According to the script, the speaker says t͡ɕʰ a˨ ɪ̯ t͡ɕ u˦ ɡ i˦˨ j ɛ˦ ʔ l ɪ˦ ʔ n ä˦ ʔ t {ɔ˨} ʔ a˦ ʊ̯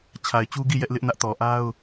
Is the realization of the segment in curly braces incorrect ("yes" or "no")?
no